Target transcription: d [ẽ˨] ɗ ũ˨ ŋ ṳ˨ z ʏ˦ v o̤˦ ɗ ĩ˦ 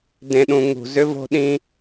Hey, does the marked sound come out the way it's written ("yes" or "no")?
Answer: yes